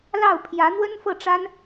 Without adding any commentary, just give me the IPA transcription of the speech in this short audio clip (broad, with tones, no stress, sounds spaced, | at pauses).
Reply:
l ɑ˥˩ ʊ̯ pʰ j ä˧˥ n̪ w ə˥ n f ɤ˥˩ ʈ͡ʂ a˥ n